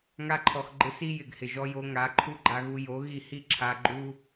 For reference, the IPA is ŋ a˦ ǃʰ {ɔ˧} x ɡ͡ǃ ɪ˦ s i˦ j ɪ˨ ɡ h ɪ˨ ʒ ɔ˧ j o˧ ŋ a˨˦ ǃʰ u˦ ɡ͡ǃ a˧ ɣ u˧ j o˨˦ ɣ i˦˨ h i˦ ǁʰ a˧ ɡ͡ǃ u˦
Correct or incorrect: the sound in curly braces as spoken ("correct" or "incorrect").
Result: correct